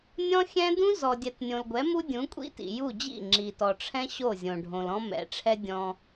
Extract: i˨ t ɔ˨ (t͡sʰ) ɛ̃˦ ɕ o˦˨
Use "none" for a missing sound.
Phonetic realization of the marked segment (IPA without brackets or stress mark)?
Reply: ʈ͡ʂʰ